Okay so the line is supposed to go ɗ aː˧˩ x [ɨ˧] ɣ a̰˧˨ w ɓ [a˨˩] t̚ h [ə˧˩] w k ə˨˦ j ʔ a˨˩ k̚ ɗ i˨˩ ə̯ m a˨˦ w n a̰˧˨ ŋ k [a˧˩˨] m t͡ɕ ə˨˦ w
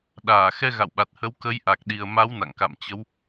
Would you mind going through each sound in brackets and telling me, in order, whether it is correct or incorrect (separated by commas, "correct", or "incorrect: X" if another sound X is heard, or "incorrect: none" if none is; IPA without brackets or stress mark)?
incorrect: ɛ˧, correct, incorrect: ə˨˦, incorrect: a̰˧˨